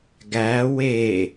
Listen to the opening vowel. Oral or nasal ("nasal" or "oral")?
oral